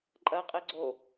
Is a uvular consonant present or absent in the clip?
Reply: present